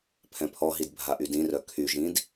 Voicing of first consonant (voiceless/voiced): voiceless